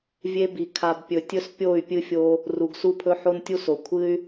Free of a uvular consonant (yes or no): yes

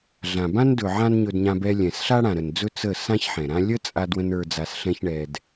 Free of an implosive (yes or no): yes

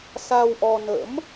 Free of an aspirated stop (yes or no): yes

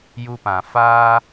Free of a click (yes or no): yes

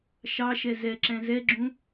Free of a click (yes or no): no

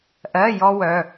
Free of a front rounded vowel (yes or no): no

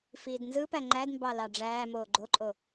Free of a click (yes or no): no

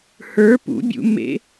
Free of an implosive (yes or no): yes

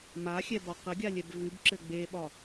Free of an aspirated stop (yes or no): yes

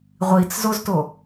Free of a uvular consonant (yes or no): no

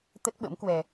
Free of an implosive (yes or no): no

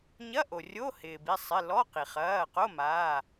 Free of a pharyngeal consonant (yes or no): yes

